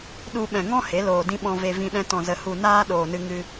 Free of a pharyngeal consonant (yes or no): yes